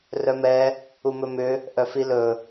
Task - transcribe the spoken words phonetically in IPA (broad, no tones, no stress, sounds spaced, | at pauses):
r œ m ɛ | u m ɵ m ʏ | ʔ œ f i l ɵ